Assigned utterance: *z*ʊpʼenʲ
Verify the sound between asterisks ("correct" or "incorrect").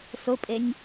incorrect